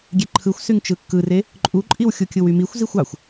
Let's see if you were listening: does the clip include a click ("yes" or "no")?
yes